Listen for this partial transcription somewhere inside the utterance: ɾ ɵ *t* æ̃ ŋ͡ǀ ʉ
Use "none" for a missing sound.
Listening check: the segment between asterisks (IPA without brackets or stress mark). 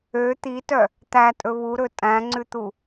tʼ